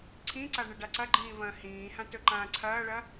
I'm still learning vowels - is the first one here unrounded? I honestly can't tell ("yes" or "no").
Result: yes